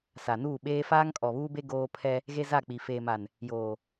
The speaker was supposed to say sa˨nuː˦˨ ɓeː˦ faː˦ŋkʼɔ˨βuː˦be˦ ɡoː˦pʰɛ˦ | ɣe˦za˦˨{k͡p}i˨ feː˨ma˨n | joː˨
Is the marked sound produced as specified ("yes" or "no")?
yes